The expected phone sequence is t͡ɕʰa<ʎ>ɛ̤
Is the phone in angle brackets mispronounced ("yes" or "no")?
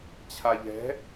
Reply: no